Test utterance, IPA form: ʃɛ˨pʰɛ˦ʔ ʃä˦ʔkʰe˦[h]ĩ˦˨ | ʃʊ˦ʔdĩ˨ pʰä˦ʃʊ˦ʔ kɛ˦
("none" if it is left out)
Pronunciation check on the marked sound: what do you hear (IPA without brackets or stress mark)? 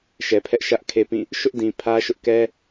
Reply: p